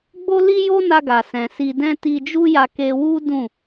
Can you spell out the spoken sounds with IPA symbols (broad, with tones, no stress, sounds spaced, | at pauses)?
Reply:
ɡ͡b o˦ l i˦ j o˦ n a˧ ɡ a˨ s ɛ̃˨ s i˧ d ɛ̃˦ t i˧ d͡ʒ u˦ j a˧ k e˧ w u˦ d ũ˦˨